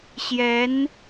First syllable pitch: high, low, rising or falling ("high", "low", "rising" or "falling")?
rising